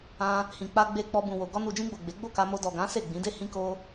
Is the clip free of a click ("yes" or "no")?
yes